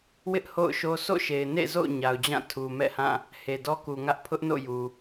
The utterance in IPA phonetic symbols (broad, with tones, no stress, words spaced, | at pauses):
wɪ˦ʔ ho̰˦˨ʊ̯ʃo˦ so̰˦˨ʃe˨ɪ̯nḛ˦˨zo̰˦˨ʊ̯ ɲa˨ʊ̯d͡ʑã˦˨ tʰu˨mɛ̰˦˨hã˦˨ | he˨dɔ˦ku˨ŋä˦ʔ pʰʊ˦ʔno̰˦˨ju˨